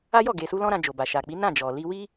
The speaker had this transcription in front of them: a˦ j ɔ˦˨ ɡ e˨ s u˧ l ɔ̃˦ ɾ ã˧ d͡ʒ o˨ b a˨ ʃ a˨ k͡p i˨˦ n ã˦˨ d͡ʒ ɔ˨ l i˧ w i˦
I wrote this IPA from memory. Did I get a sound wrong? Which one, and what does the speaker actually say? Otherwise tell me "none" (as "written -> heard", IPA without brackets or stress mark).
none